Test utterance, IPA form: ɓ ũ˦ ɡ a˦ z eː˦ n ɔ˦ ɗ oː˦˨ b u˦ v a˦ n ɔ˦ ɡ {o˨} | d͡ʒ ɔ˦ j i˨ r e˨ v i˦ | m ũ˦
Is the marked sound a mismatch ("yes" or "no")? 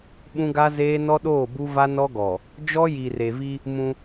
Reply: yes